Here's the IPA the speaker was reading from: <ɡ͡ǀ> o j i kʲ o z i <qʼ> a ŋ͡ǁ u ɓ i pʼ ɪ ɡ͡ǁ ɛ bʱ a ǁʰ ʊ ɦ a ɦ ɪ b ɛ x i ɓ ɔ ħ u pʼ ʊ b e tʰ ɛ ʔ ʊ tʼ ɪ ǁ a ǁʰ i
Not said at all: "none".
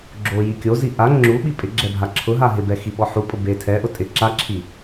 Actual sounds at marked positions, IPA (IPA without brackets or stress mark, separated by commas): ɡ͡ǁ, ʔ